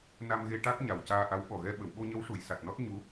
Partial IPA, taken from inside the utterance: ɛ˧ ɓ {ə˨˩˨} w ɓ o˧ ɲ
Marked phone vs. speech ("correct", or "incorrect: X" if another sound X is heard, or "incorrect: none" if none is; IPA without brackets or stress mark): correct